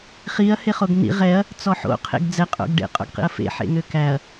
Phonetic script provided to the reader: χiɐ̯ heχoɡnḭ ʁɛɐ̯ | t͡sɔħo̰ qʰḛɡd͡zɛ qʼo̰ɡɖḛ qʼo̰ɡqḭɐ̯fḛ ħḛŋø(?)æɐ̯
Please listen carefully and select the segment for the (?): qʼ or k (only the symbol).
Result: k